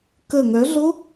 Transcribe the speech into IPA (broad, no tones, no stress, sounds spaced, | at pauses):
k ə ŋ œ ɮ o